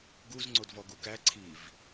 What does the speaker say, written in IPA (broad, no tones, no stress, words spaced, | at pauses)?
ɡuz ŋ͡ǀodvɔɡukæ ǀʰiv